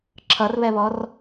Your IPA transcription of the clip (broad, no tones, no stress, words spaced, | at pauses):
ǁʰʌrβɛβɔr